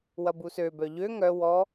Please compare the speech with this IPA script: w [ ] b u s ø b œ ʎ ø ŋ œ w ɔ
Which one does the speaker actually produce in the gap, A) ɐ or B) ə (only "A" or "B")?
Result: A